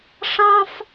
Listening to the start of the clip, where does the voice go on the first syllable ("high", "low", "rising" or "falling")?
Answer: high